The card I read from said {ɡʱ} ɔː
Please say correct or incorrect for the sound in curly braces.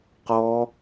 incorrect